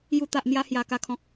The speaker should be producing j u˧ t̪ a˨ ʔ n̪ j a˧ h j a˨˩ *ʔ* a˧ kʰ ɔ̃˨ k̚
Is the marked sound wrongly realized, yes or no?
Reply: yes